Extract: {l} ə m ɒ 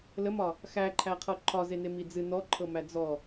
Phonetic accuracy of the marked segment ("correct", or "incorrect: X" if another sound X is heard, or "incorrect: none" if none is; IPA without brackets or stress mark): correct